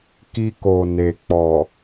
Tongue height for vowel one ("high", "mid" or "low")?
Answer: high